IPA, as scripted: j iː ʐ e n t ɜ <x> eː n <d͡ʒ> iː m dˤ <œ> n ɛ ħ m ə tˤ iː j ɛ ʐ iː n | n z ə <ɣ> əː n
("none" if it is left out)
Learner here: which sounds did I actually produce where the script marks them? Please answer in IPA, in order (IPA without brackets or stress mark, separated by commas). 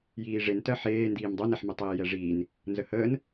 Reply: ħ, d, œ, h